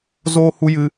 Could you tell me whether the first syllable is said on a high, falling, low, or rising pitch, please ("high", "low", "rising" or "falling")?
high